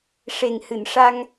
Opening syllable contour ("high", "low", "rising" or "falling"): low